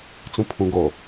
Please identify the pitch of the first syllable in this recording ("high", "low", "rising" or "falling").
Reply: low